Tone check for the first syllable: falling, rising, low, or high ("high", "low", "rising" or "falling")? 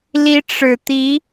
rising